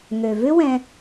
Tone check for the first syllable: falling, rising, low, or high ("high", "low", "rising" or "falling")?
low